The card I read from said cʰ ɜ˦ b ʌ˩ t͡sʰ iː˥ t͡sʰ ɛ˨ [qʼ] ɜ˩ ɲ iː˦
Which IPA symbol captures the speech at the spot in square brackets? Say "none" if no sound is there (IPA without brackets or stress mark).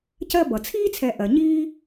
ʔ